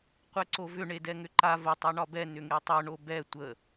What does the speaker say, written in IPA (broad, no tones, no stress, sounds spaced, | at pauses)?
qʷ ɛ ǀ o v ʏ ɳ e d ɛ ŋ ʏ ǃ a v ə tˤ e ɳ ɒ b ɛ n ʏ ŋ e tˤ o ɳ o b ɛ tʷ ə